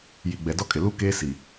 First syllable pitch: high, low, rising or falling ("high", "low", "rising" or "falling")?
low